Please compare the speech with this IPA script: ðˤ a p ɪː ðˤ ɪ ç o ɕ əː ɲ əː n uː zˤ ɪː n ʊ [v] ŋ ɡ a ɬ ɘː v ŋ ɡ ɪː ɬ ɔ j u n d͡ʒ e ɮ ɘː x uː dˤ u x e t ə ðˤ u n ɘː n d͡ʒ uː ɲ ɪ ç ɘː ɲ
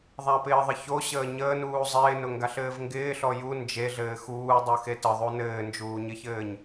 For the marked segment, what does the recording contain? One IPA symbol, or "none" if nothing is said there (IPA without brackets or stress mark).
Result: none